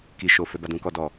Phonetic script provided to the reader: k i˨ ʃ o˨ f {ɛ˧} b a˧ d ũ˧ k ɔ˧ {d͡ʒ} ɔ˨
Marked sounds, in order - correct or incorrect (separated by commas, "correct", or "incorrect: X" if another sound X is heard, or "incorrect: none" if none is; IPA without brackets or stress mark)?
correct, incorrect: d